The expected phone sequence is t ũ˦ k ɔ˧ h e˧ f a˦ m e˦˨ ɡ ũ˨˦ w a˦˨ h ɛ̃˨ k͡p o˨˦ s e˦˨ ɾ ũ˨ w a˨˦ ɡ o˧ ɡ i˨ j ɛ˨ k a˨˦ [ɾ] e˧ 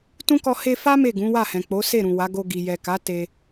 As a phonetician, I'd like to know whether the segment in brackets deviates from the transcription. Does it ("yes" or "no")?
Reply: yes